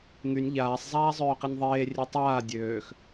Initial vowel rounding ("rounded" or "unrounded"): rounded